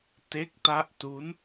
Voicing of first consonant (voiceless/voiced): voiceless